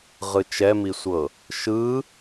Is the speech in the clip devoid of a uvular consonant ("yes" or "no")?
no